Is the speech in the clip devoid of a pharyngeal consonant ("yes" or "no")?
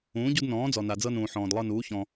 no